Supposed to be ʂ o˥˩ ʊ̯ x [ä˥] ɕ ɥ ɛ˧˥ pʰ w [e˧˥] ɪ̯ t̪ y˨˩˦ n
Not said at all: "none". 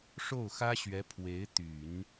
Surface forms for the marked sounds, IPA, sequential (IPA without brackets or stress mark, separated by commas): ä˥, e˧˥